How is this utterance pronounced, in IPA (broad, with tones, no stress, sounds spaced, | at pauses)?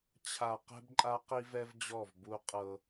t͡ɕʰ a˨ q ɛ̤˦ b ǃʼ a˦ q i˦ v ɛ˦ v d͡ʑ ɔ˦˨ v b u˦ qʼ ɤ˦